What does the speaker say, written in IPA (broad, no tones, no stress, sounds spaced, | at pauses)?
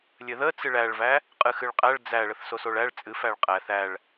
lʲ ɘ ð ə t͡s ɨ ɭ æ ɭ v æ | qʼ ɨ x ɨ ɭ qʼ æ ɭ d͡z æ ɭ ə θ s o s o ɭ æ ɭ t͡sʼ ɨ f æ ɭ qʼ æ θ æ ɭ